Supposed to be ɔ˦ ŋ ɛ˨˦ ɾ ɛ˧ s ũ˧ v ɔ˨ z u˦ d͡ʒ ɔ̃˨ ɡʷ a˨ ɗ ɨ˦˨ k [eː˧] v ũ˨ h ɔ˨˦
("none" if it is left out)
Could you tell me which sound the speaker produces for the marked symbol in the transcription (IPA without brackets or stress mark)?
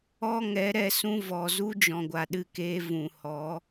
eː˧